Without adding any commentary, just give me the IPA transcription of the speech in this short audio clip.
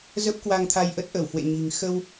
zə˦˥p̚ kwa˧ŋt̪ʰa˧jʔə˦˥t̚ ʔə˧˩whwḛ˧˨ɲi̤˨˩ŋ xə˧w

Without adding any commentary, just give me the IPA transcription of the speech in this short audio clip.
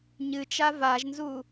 ɲɨt͡ʃa vaʒnzu

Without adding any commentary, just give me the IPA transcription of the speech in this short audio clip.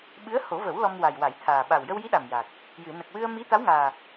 ɓɨ˧˥ə̯ho˨˩˦və˨˩˦w lɔ˧mwa˨˩jwa˨˩˦jt̪ʰaː˨˩ ɓa˨˩wjə˧wji˧˥ ɗa˨˩mja˨˩k̚ | jɨ˨˩˨nə˨˩k̚wɨ˧ə̯ mi˧˥t̪a˧˥wŋaː˨˩

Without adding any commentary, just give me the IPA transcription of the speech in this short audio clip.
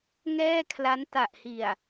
ŋɛː˥˩kʰla˦˥n ta˨˩ʔhi˨˩a̯

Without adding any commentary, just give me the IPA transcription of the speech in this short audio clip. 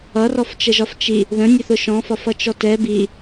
ʌrɔft͡ʃəʒɒf t͡ʃi | ðə̃nʲəθʊ ʃɔ̃fɒf ʌt͡ʃɔtɛ bi

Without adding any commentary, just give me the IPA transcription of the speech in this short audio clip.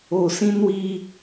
o˨sĩ˦nwi˦

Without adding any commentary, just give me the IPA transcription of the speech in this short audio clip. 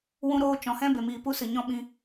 wũ˧ɾoː˧t͡ʃɔ̃˨hɛ̃˦ be˨miː˨pu˦sɨ˨ ɲɔ̃˦ɓĩ˧

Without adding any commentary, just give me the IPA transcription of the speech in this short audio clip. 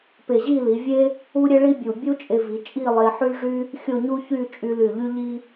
pe˧˩ʑi˥˧li˩˧ vʲe˥ | u˥ɾʲe˥ɭi˥bʲu˧˩ bʲu˥ t͡ʃʼe˧vi˩˧t͡ʃʼi˥˧ lˠe˧ħy˥ʐy˥ | xʲo˥˧ɲu˥çy˥˧ t͡ʃʼy˧ly˧˩ ʎy˥ʎi˥

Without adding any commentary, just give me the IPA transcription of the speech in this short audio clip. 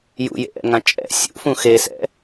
jṵjḛʔɛ̰ŋã t͡ʃʼɛ̰ sʲṵfũ xesɛ̰

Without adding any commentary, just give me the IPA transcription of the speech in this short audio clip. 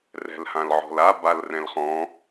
rɛ̤lhãlʕɔ̤la balrɛ̃lχɔ̃

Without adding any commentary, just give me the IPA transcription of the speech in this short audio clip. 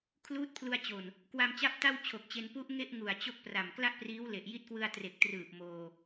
kʰluː˦˥t̚pʰlu˧a̯t͡ɕo˨˩n | kwa˧mt͡ɕa˦˥p̚ta˥˩w t͡ɕʰo˨˩k̚t͡ɕe˧n pu˦˥ʔŋe˥˩ʔ ŋu˨˩a̯t͡ɕo˥˩k̚pra˨˩m kla˥˩ʔpriː˦˥wle˨˩ʔ ji˦˥t̚kwɯ˧a̯ tre˨˩k̚trɯː˨˩p̚ moː˧

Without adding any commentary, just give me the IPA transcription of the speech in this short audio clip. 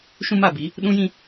ʃũ˦ma˦˨bi˨˦ | ɗũ˦jĩ˦

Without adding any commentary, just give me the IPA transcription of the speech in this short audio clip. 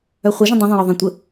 œχʷəʒə̃ dˤõðˤõjɒ ðˤẽtʷə

